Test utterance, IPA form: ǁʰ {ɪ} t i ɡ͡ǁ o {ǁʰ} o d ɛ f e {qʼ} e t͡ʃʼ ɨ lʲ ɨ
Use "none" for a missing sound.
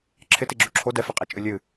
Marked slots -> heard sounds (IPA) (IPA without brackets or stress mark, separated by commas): ɪ, ǁʰ, qʼ